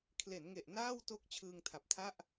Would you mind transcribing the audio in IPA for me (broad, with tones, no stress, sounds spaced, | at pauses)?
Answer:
kʰ l e˩˦ n ŋ e˨˩ ʔ n aː˥˩ w t o˦˥ k̚ t͡ɕʰ ɯː˧ ŋ tʰ a˨˩ p̚ tʰ a˥˩ ʔ